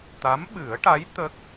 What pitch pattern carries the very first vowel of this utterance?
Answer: rising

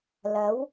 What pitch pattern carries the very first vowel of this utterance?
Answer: rising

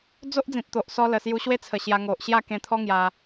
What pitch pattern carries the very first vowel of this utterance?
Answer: high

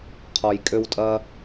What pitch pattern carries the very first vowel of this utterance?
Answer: low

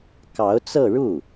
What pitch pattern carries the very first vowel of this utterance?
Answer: rising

